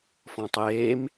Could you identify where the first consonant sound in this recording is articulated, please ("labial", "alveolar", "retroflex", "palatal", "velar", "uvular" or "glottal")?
labial